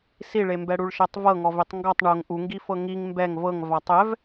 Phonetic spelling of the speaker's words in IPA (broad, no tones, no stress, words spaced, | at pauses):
siɭembɛɽuɭ ʃɛtˤvɤŋɔv itˤŋɡɔtˤ ɳoŋ ʔuŋɡifɤ ŋiŋ mbɛŋ vɤŋ vatˤɛv